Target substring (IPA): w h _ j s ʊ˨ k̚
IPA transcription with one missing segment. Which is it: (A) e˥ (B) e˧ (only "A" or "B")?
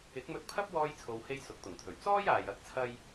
A